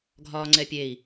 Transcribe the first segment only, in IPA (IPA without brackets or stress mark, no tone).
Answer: ɡʱ